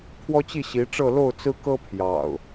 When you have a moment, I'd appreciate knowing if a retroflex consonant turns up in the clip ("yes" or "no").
yes